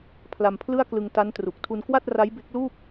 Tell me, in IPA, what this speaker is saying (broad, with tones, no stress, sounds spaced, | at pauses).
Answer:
pʰ l a˧ m pʰ l ɯ˥˩ a̯ k l ɯ˧ ŋ t a˦˥ n t r u˨˩ k̚ tʰ u˧ n k w a˥˩ t̚ r a˦˥ j b e˦˥ k̚ l uː˥˩ p̚